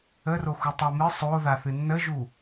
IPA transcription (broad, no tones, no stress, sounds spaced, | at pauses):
ə r o x u tˤ a m ɨ sˤ o ð a θ ɨ nː ə ʒ u